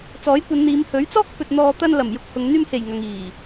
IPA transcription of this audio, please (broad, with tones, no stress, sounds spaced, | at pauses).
t͡s ɔː˨˥ j kʷ ɐ˨˧ n n̪ iː˨˧ m h ɵ˨˥ ɥ t͡s ɔː˥ k̚ f ɵ˨ t̚ n̪ ɔː˧ t̪ ɐ˧ n l ɐ˨˩ m j ʊ˧ k̚ h ʊ˨ ŋ n̪ yː˧ m h e˨˩ j ŋ ɐ˨ ŋ iː˨˩